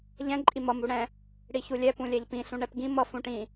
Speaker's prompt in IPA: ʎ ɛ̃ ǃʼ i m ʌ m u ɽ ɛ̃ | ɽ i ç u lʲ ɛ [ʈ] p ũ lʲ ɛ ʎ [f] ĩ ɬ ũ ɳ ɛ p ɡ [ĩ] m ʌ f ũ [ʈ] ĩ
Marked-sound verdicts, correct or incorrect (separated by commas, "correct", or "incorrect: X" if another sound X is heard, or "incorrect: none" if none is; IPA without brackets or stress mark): incorrect: none, incorrect: p, correct, correct